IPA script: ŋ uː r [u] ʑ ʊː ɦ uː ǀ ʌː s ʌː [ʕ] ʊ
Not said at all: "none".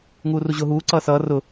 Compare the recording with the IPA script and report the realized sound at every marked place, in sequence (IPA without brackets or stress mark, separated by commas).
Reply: u, r